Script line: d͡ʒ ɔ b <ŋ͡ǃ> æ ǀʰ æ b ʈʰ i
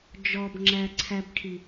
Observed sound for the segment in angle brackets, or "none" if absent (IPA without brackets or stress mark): ŋ͡ǁ